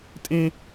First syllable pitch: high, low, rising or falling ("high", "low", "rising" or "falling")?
high